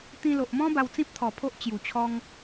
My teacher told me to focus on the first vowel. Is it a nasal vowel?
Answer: yes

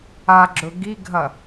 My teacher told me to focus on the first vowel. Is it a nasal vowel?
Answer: no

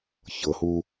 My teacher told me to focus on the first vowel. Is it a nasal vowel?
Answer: no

